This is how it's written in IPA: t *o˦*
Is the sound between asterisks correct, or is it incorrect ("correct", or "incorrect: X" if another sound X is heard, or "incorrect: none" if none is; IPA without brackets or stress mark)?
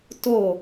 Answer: incorrect: o˥˩